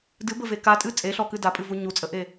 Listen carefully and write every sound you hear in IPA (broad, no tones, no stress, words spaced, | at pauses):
dɨbəve katʼɨ t͡sʼeɬɔkɨ dapʼɨvu ɲut͡sʼəʔe